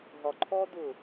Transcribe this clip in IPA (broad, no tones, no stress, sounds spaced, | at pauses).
ɦ ɒ ǃʰ ɔː d ʊː